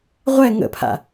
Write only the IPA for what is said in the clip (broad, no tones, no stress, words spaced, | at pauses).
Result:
ʁʷɛ ŋə̰pʰa̰